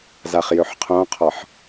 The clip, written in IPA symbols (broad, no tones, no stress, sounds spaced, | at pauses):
z a χ j ø ħ qʰ õ qʰ ɒ ħ